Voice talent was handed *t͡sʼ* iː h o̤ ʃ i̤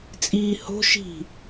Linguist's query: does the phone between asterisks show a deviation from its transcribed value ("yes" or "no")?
no